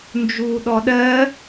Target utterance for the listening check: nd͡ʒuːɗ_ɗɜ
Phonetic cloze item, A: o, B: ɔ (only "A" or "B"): B